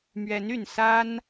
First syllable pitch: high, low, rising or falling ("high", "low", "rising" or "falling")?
rising